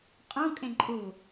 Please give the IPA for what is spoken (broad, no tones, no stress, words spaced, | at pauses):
qʼũkʼẽǃʼu